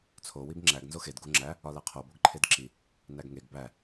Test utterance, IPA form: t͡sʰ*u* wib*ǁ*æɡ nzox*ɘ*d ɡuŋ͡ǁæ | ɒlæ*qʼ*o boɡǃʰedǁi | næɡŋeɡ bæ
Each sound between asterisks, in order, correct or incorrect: incorrect: o, incorrect: ŋ͡ǁ, incorrect: e, incorrect: qʰ

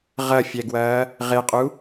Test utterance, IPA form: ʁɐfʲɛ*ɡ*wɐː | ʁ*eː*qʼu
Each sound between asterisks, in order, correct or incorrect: correct, incorrect: e

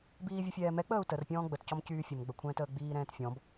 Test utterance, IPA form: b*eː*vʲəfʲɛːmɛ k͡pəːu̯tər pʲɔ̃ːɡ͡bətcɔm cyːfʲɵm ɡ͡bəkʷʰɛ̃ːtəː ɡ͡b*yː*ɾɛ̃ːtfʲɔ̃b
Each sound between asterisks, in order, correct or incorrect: incorrect: iː, incorrect: iː

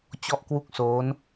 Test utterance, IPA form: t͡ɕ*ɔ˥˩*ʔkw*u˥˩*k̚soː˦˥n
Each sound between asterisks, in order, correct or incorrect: correct, correct

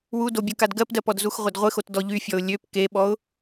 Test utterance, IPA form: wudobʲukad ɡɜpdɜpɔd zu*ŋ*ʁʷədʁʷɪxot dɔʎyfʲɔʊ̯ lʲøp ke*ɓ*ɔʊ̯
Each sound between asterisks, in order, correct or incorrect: incorrect: x, correct

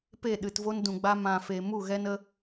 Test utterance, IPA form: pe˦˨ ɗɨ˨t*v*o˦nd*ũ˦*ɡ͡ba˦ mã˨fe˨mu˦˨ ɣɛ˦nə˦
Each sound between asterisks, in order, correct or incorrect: correct, incorrect: ũ˨

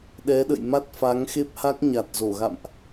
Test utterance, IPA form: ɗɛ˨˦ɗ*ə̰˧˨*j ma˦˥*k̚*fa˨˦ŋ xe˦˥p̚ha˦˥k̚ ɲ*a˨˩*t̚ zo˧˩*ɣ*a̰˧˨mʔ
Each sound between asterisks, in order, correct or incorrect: correct, incorrect: t̚, correct, correct

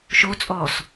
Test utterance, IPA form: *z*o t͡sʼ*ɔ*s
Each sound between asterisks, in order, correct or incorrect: incorrect: ʃ, correct

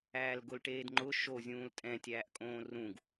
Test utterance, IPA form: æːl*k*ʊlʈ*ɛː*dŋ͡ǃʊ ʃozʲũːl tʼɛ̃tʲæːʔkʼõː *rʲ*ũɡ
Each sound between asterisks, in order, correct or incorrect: incorrect: ɡ, incorrect: eː, incorrect: r

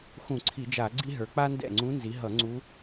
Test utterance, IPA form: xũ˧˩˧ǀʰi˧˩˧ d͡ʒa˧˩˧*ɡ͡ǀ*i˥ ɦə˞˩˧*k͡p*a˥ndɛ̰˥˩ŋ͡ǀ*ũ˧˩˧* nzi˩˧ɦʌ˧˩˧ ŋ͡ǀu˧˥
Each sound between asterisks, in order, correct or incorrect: correct, correct, incorrect: ũ˧˥

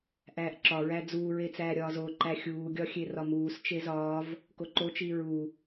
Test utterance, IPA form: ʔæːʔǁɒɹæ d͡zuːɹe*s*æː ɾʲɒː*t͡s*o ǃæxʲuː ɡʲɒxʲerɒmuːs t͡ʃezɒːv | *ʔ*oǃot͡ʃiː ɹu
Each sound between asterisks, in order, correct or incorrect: incorrect: t͡s, incorrect: z, incorrect: k

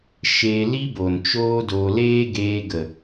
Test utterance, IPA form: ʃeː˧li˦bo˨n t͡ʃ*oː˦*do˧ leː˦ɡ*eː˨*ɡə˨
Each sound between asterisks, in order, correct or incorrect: correct, incorrect: eː˧

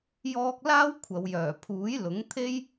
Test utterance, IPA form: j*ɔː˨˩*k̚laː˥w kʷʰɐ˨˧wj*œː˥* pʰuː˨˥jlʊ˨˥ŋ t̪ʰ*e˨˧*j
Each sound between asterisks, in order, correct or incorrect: incorrect: ɔː˧, incorrect: œː˨˩, incorrect: e˥

